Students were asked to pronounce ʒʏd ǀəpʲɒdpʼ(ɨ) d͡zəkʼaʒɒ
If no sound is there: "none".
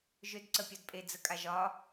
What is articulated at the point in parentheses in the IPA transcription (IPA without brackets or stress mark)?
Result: e